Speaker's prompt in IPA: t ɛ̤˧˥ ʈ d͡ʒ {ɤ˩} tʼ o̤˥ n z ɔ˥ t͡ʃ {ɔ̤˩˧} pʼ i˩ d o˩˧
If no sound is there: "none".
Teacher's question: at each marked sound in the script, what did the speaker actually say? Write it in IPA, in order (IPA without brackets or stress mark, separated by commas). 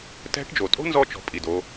o˩, ɔ̤˩˧